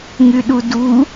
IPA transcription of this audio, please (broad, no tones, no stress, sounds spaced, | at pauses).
ŋ y ɗ u d u